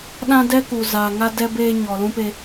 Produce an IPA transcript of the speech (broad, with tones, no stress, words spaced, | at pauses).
ɗã˦dɛ˦ku˨ zaː˨ŋa˦dɛ˦ beː˦ ɲɔ˨ lũ˦pe˦